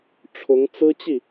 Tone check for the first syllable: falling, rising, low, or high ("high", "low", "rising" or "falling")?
rising